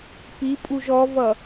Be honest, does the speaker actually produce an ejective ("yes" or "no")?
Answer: yes